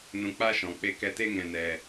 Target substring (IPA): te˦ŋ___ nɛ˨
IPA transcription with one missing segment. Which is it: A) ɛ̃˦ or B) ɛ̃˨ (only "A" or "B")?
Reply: B